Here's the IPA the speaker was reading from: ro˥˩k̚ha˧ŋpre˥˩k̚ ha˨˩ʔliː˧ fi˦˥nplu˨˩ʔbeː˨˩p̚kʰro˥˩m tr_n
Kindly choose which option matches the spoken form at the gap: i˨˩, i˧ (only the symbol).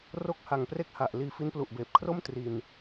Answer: i˧